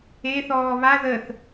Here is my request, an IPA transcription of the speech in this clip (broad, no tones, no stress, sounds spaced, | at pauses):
e θ ɔː β a ð ə θ